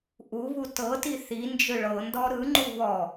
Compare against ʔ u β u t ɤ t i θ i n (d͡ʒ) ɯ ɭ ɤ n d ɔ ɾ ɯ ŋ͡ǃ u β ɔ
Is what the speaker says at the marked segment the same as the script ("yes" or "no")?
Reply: yes